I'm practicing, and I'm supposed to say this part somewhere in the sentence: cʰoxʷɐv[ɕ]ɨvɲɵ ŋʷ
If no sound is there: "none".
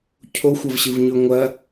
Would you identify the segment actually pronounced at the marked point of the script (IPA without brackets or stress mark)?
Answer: ɕ